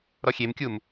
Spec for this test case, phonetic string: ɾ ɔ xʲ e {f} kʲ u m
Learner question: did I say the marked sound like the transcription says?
no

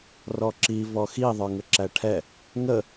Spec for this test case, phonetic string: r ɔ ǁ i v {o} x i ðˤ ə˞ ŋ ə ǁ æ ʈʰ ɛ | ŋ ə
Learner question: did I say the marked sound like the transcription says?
no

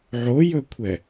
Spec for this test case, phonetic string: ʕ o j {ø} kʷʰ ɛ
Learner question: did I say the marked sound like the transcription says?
no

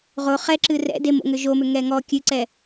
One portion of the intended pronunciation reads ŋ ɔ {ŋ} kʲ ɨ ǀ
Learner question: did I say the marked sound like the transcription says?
no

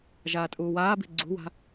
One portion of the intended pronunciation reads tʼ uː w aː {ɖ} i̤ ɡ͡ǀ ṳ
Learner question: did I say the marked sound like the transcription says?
no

